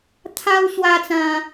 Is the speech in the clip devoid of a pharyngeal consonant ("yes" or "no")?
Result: yes